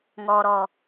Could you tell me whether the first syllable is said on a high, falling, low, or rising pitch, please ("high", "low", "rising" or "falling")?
low